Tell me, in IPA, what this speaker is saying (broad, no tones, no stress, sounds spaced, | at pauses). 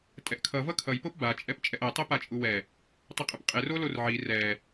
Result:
tʼ ɛ ʔ kʰ ʌ v ʌ kʰ ʌ j p o p b a t͡ʃʼ ɛ p t͡ʃʼ ɛ ʔ ɛ tˤ e p a t͡ʃʼ u w ɛ | tˤ i qʼ ɯ p qʼ e r o l o r ʕ i r ɛ